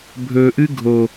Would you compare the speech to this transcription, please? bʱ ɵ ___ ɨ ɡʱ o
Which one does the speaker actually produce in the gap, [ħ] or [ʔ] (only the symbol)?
ʔ